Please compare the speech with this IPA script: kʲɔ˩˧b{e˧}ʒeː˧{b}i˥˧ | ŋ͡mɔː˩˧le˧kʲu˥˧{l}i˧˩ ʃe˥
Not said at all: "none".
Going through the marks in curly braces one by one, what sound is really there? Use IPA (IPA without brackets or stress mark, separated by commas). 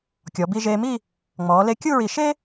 i˧, m, ɹ